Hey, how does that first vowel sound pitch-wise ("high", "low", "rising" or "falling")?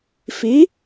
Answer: rising